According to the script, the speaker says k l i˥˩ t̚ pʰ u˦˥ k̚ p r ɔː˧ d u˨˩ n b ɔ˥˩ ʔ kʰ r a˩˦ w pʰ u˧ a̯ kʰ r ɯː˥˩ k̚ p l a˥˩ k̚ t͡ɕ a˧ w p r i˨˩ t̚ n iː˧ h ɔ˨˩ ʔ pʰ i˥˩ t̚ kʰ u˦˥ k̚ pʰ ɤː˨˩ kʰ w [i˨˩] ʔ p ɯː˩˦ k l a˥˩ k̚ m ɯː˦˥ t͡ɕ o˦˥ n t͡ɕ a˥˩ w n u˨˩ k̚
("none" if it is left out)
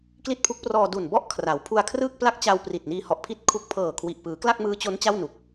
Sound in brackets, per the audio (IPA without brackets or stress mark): i˨˩